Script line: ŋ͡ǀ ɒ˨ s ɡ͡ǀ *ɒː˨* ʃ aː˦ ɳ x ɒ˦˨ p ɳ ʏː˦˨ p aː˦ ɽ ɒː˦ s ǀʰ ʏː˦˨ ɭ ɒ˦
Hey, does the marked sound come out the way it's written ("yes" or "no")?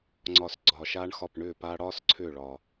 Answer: yes